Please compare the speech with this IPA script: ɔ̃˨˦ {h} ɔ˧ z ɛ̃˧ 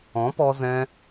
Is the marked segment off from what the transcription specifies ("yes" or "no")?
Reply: yes